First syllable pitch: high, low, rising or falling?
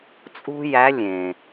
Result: high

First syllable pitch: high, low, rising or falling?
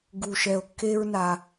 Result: low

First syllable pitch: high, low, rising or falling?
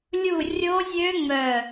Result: falling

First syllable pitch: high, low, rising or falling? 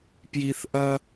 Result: low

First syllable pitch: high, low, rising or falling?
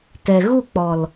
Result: low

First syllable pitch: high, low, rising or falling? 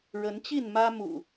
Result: rising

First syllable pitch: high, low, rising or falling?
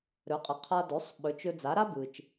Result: rising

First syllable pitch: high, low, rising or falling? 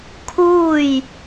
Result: falling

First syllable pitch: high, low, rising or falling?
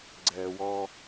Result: low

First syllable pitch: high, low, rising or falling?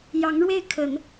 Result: rising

